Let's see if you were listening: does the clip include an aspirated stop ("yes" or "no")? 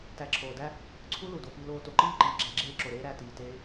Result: yes